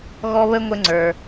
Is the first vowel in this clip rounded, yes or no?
yes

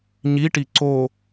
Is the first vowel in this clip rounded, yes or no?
no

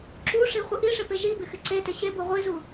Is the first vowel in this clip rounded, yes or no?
yes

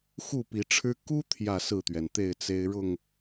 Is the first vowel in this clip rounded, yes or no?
yes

